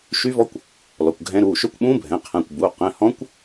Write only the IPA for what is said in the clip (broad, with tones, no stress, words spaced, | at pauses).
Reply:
ʃy˦˥vɔ˦˥kʷ | lɔ˩˧˩kʷɡʱɛ̃˦˥ɾuː˩˧˩ ʃø˦˥kʷɓũː˦˥bʱɛ̃˩˧˩ qʰɛ̃˩˧˩kʷ buː˩˧˩ qɛ̃˩˧˩hɔ̃˦˥kʷ